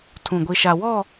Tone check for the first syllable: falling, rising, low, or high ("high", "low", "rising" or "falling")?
low